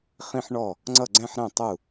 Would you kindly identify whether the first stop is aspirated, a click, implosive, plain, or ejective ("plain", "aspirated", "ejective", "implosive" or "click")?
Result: click